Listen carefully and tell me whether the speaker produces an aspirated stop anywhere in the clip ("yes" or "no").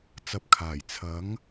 yes